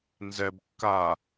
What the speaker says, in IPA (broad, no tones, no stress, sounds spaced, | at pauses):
n z ɛ b kː a